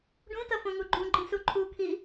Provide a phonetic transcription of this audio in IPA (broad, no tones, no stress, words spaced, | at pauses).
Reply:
ɖũtʌ fõŋuɡ͡ǃũɡ͡ǃĩ suǃʰukʰi